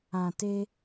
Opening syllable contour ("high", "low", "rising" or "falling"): low